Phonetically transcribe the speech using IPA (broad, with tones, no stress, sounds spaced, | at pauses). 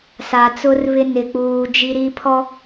s a˨ t͡s ʊ˦ r β ɪ˦ n ɪ˨ k͡p uː˨ d͡ʒ i˦ ɾ i˦ pʰ ɔ˦